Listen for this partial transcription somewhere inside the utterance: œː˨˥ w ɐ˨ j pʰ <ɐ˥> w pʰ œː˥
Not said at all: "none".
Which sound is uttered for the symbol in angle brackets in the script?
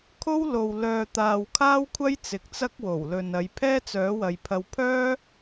ɐ˧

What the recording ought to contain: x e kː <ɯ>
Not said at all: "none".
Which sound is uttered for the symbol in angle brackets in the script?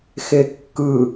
ɯ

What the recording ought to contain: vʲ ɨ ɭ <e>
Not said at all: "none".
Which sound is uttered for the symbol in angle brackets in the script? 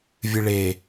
e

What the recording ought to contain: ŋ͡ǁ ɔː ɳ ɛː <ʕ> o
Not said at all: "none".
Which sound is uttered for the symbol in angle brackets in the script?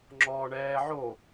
ʕ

